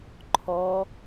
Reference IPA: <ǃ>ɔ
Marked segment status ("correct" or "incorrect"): incorrect